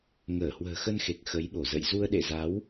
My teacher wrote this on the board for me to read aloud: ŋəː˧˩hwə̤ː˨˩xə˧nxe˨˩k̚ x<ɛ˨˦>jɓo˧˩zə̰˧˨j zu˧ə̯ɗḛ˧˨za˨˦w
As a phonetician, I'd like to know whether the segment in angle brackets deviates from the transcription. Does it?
yes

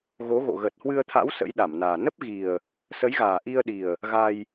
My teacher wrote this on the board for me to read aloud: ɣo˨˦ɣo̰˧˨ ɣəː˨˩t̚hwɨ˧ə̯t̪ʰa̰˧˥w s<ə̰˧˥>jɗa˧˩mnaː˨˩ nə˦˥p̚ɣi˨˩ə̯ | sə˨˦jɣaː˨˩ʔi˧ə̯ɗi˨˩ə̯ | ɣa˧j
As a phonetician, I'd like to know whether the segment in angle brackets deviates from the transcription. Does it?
no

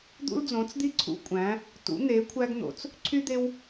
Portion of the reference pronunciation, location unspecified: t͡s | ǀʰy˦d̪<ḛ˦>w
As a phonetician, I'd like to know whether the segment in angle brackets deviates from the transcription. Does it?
yes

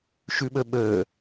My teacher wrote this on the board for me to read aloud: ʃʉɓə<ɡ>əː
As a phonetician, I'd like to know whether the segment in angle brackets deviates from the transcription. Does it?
yes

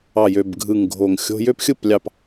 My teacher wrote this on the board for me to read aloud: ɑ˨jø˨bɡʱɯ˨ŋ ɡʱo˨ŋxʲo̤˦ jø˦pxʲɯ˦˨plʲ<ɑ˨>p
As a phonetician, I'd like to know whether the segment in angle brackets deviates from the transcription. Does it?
no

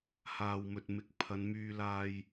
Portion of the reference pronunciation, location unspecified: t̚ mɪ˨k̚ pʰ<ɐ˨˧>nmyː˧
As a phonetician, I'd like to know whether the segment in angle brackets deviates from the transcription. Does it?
no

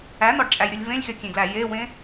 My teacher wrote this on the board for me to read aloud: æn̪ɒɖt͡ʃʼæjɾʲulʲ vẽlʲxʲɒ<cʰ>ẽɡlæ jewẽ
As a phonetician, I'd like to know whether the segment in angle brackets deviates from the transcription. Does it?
yes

